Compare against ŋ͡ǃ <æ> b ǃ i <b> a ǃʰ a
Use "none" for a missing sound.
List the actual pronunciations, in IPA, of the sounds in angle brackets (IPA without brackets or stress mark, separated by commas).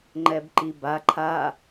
ɛ, b